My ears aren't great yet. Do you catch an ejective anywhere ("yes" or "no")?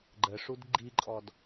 yes